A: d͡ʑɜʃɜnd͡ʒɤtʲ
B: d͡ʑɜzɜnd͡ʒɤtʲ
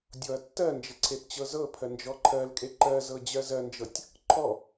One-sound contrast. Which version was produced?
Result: B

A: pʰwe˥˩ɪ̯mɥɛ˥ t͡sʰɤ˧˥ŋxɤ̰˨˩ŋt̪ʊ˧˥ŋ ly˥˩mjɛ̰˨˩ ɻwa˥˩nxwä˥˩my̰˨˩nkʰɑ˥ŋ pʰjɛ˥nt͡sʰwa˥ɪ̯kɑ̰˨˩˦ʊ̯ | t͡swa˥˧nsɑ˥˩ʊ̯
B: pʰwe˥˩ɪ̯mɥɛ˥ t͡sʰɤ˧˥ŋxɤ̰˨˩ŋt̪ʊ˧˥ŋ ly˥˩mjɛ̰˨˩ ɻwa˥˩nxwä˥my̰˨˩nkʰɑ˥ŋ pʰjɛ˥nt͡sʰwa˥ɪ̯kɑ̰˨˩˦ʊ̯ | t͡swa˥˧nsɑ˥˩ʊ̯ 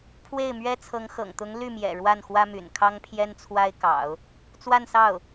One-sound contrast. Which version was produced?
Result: B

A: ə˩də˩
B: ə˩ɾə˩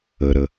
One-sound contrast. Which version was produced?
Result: B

